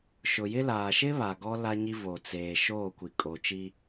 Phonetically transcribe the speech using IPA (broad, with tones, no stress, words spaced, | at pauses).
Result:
ʃʊ˨jɪ˦laː˨ ʃɪ˦ βa˨ɡɔ˦ la˦ɲi˦ vo˨ t͡seː˨ʃoː˦˨ kʷi˨kʼo˨t͡ʃiː˦